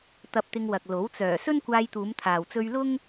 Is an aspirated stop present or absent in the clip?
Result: present